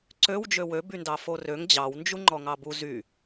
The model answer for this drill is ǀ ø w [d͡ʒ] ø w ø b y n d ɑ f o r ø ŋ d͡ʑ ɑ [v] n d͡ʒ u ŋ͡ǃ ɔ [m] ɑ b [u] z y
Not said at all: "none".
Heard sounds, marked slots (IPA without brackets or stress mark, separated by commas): d͡ʒ, w, ŋ, u